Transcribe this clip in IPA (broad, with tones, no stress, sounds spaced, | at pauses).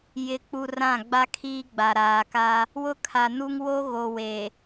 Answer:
j ɪ˨ k͡p u˨ r ã˦˨ ɡ͡b a˦ kʰ iː˦ ɡ͡b a˨ ɾ aː˨ k a˦ | w ʊ˦ kʰ a˨ n u˦ ŋ w o˦ ɣ o˨ w e˨